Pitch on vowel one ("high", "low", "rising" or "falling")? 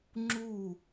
falling